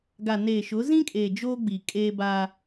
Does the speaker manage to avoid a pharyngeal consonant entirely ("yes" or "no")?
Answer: yes